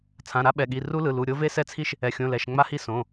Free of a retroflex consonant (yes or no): yes